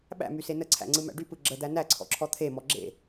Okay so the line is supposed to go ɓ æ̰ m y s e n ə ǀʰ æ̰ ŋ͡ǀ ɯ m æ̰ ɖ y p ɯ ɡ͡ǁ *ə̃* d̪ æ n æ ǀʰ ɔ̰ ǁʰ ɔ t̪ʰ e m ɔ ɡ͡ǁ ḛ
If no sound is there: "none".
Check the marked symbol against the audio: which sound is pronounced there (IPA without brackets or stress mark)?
ə